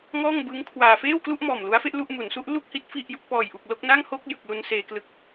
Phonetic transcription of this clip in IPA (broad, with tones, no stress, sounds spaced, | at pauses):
ŋ ɔː˥˩ ŋ b ɯː˦˥ ŋ kʰ w aː˧ f eː˥˩ w k l u˥˩ ʔ m ɔː˨˩ m l u˦˥ a̯ f e˦˥ ʔ l u˥˩ ʔ m u˩˦ n s u˦˥ ʔ l u˥˩ k̚ h i˦˥ t̚ f i˥˩ ʔ j u˦˥ k̚ p ɔː˨˩ j ʔ u˨˩ k̚ l o˥˩ k̚ n a˥˩ ŋ h o˥˩ k̚ j ɯ˨˩ k̚ l u˧ n s eː˧ k l ɯ˦˥ k̚